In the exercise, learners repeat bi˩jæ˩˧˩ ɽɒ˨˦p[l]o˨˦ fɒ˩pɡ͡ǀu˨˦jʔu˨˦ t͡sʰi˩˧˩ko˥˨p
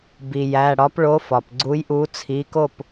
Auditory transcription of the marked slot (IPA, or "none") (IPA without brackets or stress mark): ɭ